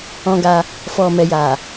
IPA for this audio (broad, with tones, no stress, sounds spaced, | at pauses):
ɔ̃˧ ɡ a˧ | f ɔ˨ m ɛ˨ j a˨